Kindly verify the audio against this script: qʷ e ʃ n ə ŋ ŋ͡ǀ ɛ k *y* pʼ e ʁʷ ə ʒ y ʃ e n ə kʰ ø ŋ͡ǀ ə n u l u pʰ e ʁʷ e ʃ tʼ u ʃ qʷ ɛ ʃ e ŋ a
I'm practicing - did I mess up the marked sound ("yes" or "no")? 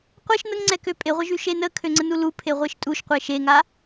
yes